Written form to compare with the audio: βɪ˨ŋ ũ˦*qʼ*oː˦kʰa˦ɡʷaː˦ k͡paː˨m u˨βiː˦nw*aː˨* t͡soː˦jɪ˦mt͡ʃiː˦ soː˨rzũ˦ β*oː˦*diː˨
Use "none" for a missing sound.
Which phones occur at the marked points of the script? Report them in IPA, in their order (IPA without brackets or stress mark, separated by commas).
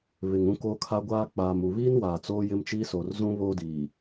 k, aː˨, oː˦